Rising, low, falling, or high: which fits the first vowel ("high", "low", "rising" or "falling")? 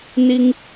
high